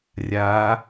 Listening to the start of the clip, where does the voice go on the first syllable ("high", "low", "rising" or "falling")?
rising